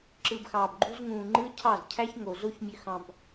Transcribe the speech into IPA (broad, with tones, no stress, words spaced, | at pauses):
ǁɯ˨bxɑː˨bɡ͡ǃu˦z ŋũː˨ŋ͡ǃɯ˦cʰɑ˦˨z cʰæ˦çŋo˨ zo˦ç mʲø˦xɑ̃˦b